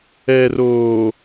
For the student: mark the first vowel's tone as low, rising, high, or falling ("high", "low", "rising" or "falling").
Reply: low